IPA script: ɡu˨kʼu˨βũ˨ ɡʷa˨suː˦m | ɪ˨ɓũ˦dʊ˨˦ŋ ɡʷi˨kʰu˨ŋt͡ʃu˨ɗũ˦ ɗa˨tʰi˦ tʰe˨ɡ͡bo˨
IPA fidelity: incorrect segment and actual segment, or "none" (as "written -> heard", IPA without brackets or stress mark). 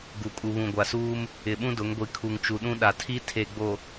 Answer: none